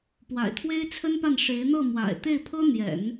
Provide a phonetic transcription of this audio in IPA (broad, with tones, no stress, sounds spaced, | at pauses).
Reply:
p w a̰˨˩ ɪ̯ t̪ʰ w e˥ ɪ̯ t͡sʰ ə˥ n p a˥˩ n ʂ e˧˥ ɪ̯ n̪ ɤ˥˩ m w a̰˨˩ ɪ̯ t̪ e˥˩ ɪ̯ pʰ ɤ˥ n̪ j ɛ̰˨˩˦ n